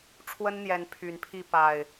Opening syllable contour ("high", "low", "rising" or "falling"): high